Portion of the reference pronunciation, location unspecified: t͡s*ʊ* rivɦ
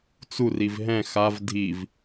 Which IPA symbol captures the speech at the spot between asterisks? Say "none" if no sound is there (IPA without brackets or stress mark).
u